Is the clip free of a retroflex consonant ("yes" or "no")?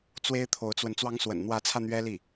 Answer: yes